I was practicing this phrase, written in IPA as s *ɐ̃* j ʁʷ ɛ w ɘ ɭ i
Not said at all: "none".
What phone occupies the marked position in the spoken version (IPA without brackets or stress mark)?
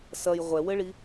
ɐ